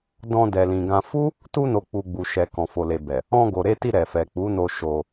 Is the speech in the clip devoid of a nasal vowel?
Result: no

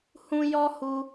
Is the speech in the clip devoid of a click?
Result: yes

